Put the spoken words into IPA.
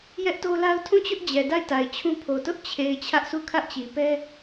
j ɛ˦ ʔ t o˦ l a˦ ʊ̯ tʰ ũ˦˨ t͡ɕ ʊ˦ ʔ d͡ʑ ɛ˨ d a˦˨ ɪ̯ t a˨ ɪ̯ t͡ɕʰ ũ˦ pʰ o˨ t ʊ˦ ʔ t͡ɕʰ e˨ ɪ̯ t͡ɕʰ ä˦ ʔ sʰ u˦˨ kʰ ä˦ ʔ t͡ɕ i˨ p ɛ˦

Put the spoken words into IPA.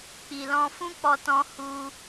k͡p i˨ l ɔ̃˧ f ũ˦ k͡p ɔ˧ t ɔ̃˧ h u˧

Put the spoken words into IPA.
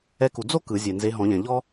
ɛ˧˥ k u˨ d͡z o˥ k ɯ˨˩˦ zʲ e˨ n z e˧˥ ɦ ɔ̃˨˩˦ ʎ ɛ̃˨ ʎ ɔ˥

